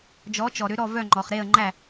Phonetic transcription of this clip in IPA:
d͡ʒ ɔ˩˥ t͡ʃ ɔ˩ ɾ ʏ˩˥ ɾ ɔ˥˩ v œ˥˩ ŋ͡ǃ ɔ˩ χ ɾ e˥˩ ə̯ ŋ͡ǃ æ˥˩

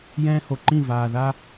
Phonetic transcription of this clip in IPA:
j ɛ̃ː˦ h o˨ ǃ ĩ˦˨ v aː˨ ð a˦

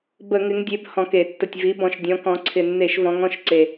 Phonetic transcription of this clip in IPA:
b ə˧˩˧ ŋ ɪ˨˦ ŋ dʲ e˨˦ b h ɔ̃˨˩ k e˧˩˧ tː ə˨˩ tʲ v i˨˦ b ɔ̃˨˩ ʃ dʲ ɔ̃˨˦ k ɔ̃˨˦ ǀʰ ɪ˨˩ nː e˧˩˧ ʃ v ɔ̃˨˦ ŋ ɔ̃˨˦ ʃ ǀ e˨˩

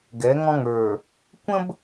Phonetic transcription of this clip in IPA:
ɡ ɛ˨˦ ŋ ɔ̃˦ ŋ ə˞˨ | kʷ ə̃˦ b

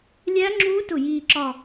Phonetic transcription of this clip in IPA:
lʲ æ˦˥ ŋ͡ǁ u˦˥ t ʊ˥˩ j iː˥˧ ǁ ɒ˥˧

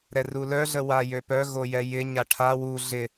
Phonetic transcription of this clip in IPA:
ɾ ɛ r u l œ ɮ ə w a j ø p œ ɣ o j ɛ j ɪ ɲ a ʈʰ a w u ɮ ɪ

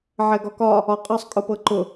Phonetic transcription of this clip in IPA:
ʕ ɛ ɡ ɒ k ɒ | ɒ qʼ ɤ sˤ kʼ ʊ p ɤ ǃ ʊ

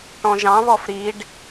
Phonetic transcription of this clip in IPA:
ʈ ɔ̃ ʒ ɑ̃ β ɔ f ɾ i ɖ

